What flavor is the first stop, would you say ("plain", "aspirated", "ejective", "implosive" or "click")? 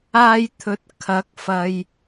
aspirated